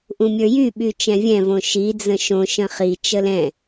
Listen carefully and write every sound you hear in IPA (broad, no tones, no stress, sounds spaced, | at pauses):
ʔ ũ mʲ ə˞ j y ɓ y t͡ʃ ɛ̃ vʲ ɛ̃ v õ ʃ i d͡z ə̃ ʃ õ ʃ ə̃ χ i t͡ʃ ə l ɛ̃